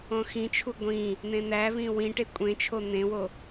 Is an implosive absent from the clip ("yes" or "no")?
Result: yes